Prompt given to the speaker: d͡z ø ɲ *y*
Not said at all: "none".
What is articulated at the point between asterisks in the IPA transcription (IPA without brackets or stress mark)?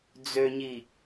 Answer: i